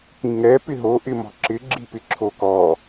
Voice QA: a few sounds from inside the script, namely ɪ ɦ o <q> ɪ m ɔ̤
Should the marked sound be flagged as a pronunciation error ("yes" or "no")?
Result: yes